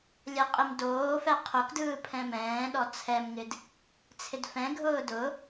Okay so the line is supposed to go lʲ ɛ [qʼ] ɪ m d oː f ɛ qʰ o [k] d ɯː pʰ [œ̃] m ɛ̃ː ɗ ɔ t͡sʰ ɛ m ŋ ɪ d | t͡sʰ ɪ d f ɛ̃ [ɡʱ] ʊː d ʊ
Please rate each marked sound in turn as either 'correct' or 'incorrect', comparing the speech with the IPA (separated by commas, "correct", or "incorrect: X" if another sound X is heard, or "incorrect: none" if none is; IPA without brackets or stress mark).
correct, correct, incorrect: ɛ̃, correct